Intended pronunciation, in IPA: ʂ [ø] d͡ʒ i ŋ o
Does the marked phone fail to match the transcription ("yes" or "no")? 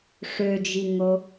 no